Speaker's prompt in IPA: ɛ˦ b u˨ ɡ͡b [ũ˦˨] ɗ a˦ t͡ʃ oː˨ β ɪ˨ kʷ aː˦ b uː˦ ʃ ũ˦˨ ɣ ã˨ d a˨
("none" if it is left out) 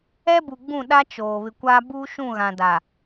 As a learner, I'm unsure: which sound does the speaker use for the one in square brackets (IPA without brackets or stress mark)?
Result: ũ˦˨